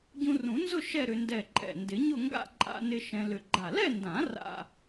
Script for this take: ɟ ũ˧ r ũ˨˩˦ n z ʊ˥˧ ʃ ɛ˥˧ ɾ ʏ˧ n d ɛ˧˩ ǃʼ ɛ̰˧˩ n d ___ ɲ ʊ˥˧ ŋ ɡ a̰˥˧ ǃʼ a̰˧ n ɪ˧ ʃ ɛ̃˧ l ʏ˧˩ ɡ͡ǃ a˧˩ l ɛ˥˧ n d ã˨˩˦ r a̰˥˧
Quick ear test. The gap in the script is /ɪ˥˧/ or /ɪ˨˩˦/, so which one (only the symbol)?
ɪ˨˩˦